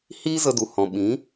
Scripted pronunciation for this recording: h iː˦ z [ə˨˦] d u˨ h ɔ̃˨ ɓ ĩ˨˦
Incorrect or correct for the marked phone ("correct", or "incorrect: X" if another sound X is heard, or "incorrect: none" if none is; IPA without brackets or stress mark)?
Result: incorrect: ə˧